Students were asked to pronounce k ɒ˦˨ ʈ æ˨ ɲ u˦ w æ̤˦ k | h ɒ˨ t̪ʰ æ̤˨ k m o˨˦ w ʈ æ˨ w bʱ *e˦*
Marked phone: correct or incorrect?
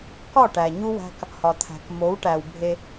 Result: correct